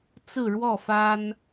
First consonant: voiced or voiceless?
voiceless